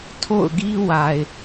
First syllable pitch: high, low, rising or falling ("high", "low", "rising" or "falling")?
falling